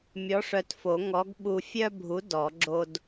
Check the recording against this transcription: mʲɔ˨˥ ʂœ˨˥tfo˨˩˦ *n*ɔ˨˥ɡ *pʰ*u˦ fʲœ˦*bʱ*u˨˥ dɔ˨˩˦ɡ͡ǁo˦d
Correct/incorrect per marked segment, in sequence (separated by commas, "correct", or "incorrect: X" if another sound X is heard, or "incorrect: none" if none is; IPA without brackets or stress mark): incorrect: ŋ, incorrect: ɓ, correct